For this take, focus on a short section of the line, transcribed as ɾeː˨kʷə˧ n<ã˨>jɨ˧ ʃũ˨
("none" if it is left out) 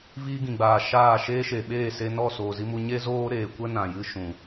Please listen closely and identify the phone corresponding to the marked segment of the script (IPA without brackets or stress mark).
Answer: ã˨